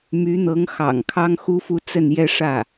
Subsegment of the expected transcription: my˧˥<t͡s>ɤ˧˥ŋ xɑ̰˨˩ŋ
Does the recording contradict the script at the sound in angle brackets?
yes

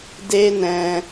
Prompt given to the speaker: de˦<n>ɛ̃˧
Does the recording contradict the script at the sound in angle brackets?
no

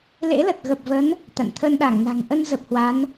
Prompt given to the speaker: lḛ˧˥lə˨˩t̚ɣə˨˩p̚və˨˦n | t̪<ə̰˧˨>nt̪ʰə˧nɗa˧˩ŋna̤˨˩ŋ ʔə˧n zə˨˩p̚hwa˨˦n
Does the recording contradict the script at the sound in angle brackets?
yes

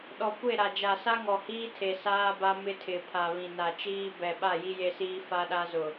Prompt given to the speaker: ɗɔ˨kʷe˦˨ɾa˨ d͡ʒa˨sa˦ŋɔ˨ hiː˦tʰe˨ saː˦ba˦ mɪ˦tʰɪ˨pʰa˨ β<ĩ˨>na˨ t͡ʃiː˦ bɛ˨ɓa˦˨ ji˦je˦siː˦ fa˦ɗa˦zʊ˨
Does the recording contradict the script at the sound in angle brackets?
no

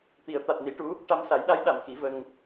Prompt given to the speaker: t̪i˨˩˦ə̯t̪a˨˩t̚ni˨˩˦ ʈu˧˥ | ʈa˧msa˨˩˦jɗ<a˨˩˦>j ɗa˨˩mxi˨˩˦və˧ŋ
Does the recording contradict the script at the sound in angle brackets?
yes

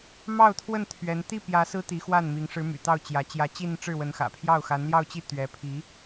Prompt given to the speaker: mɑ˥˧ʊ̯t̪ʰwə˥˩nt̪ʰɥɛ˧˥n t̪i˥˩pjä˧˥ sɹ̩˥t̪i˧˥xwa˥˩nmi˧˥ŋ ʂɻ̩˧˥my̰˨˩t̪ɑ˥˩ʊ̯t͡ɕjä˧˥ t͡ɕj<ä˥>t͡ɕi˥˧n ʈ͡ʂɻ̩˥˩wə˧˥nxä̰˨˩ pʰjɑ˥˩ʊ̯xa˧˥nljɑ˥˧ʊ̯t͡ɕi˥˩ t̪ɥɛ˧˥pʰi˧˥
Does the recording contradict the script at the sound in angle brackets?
yes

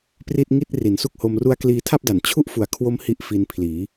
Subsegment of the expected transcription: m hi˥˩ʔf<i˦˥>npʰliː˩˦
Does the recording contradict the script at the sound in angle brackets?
yes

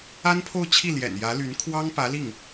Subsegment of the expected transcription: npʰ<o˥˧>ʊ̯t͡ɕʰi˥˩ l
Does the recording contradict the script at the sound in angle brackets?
no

